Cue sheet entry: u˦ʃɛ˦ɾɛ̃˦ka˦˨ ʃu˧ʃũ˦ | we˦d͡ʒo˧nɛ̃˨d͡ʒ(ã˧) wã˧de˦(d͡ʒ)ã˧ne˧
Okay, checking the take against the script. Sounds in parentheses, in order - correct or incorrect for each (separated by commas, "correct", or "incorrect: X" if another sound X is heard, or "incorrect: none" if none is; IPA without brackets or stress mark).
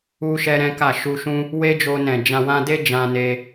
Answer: correct, correct